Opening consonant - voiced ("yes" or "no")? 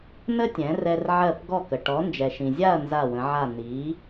yes